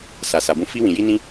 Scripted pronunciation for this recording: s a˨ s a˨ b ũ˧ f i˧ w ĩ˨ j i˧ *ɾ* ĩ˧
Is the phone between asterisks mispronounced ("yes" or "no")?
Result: yes